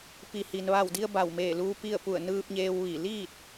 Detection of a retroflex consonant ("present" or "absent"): absent